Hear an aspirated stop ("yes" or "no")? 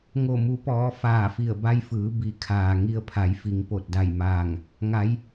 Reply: yes